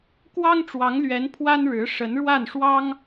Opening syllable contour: high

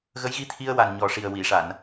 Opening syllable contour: rising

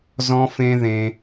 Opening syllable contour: high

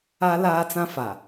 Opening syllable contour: high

